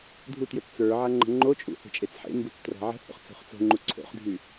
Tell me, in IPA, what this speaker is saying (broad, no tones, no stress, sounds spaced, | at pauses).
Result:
dʱ u t j ɵ t t͡s ə˞ ʕ a ŋ͡ǃ ə̤ ŋ͡ǃ o t͡ʃʼ ṵ h e̤ t͡ʃʼ e t͡s ħ ḛ m b u t͡s t r a̤ ʕ ə̤ h o̰ χ t͡s o̤ χ t͡s o̤ ŋ͡ǃ u ǀʰ o̰ χ dʱ y